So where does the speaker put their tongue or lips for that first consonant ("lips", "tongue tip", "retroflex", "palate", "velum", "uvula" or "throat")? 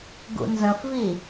velum